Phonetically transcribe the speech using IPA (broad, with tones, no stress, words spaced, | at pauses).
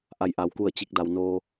ʔa˧˩jʔa˩w ku˧˩ə̯t͡ɕi˧˩k̚da˩wnoː˧